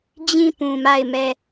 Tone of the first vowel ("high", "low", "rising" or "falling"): falling